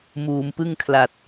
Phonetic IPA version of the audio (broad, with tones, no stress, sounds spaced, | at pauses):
m uː˩˦ m p ɯ˥˩ ŋ kʰ l a˨˩ t̚